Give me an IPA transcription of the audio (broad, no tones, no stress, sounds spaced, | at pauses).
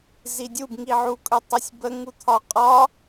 z i dʲ u b ŋ i ʕ u kʼ ɵ tˤ ɜ sʲ b ə ŋ u t̪ʰ ɒ qʼ ɒ